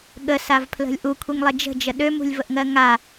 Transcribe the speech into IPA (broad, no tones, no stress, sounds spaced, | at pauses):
ɠ ə s a v pʰ l ə̤ lʲ ʔ u kʷʰ i ŋ lˠ e d͡ʒ ə̤ d͡ʒ ə ɗ ø m ṳ lʲ v ə ʔ ŋ ɜ ŋ a